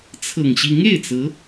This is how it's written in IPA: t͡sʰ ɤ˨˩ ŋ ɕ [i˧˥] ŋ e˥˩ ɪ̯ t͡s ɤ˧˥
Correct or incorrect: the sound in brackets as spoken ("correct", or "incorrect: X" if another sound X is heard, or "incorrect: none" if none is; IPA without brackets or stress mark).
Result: correct